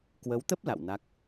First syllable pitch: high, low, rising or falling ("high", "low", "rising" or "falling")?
rising